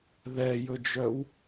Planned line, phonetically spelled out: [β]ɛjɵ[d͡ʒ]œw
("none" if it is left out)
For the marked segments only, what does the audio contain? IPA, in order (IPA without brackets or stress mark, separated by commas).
ð, d͡ʒ